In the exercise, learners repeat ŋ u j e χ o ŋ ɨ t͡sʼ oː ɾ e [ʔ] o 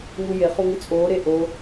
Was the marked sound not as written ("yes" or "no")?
no